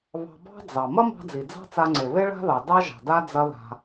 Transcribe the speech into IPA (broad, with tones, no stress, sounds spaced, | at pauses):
β ɑ̤˧ b ɑ̤˥ d͡z ɑ˩ m ɐ˥ m ɑ̤˧ d͡z i˩ d͡z ɑ̤˥ t͡s a˧ ŋ͡ǀ e˩ β e˥ ɭ a̤˥ ð ɑ˩ d ɑ˥ ʒ ɑ̤˩ d a˥ d͡z ɐ˧ ð a̤˩